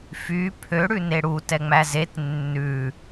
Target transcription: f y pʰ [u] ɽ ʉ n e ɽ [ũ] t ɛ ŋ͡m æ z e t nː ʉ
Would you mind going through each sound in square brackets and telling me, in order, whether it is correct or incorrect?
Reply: incorrect: ø, incorrect: u

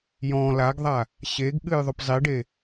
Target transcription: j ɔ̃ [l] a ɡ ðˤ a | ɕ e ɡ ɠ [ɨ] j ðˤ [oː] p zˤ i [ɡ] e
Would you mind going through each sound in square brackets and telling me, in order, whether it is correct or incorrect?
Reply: correct, correct, incorrect: o, incorrect: ɖ

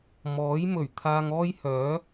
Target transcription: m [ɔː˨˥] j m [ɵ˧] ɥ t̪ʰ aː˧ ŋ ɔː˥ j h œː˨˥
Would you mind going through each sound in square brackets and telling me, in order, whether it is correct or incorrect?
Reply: correct, incorrect: ɵ˨˩

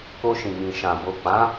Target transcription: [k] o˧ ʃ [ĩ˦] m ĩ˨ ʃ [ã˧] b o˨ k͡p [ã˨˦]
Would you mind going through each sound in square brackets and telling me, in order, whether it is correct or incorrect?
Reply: correct, incorrect: ĩ˨, incorrect: ã˨, correct

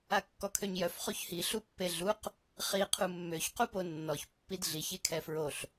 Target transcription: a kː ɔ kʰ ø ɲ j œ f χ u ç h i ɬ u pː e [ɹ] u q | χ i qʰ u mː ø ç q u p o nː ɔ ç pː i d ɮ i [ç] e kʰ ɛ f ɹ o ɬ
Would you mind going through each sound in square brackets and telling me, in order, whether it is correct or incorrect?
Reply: incorrect: ɮ, correct

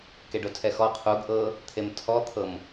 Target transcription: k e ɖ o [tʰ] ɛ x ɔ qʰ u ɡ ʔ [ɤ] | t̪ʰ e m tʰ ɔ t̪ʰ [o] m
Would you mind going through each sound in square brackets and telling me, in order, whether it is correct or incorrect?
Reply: correct, correct, incorrect: ɤ

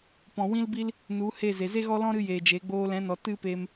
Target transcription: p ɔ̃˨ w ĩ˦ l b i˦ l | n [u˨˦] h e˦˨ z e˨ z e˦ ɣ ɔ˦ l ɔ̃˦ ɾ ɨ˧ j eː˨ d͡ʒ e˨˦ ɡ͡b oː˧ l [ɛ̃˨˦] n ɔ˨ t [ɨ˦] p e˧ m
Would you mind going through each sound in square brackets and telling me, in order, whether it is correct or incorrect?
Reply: correct, correct, correct

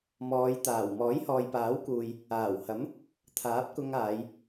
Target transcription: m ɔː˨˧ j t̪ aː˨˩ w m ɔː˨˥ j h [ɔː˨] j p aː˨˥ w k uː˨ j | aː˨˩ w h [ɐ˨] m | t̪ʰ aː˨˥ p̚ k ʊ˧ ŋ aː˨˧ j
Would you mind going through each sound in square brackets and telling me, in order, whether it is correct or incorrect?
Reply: correct, incorrect: ɐ˨˥

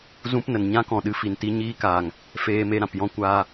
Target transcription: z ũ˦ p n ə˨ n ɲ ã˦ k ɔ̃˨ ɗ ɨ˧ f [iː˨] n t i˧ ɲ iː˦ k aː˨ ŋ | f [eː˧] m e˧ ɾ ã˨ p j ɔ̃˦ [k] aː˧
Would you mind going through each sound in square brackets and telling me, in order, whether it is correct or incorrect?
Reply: incorrect: i˨, correct, incorrect: kʷ

